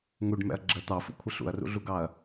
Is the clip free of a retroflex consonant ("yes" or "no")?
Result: no